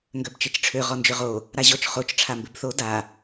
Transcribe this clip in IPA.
ŋ ɡ œ b t͡ʃ e t͡ʃ ʈ͡ʂʰ ø ʁ ɔ n d͡ʒ ʏ ʁ o | ɾ a ʑ ɔ t͡ʃ χ o t͡ʃ ʈ͡ʂʰ a m b ɪ b θ o d a

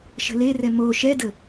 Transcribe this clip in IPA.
ʃ ə̤ l e r ɛ m o ʃ ɛ d ə

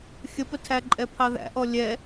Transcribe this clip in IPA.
xʲ ə p ə tʰ æ ǃʼ ɛ pʰ ɑ ð æ̰ ʔ ɔ lʲ ɛ

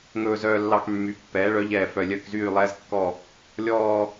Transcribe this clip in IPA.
ŋ ɵː˦ z œː˦ lː ɑ˦ k mː y˨˦ pː ɛː˨˦ ɭ œ˨˦ ʎ ɛː˦˨ f œ˦˨ lʲ œ˦˨ k z yː˦˨ lˠ ɛː˦ z kː ɔ˦˨ | lʲ ɔː˦

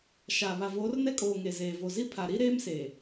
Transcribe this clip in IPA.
ʃ a˨ β a˨ v oː˨˦ r n ɛ˦ kʼ oː˨ ŋ e˨ z eː˨ v o˨ z i˦ pʰ a˨ ɾ i˦ ɾ eː˦ m s e˨

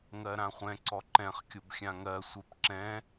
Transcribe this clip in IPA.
ŋ ɜ ɾ ã χʷ ɛ̃ ǀ ɔ ǃ ɛ̃ χ kʲ o b xʲ ã ŋ ɜ sʷ e p ǁ ɛ̃

